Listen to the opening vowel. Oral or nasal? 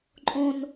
nasal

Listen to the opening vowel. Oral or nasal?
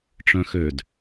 nasal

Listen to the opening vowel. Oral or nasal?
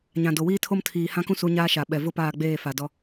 nasal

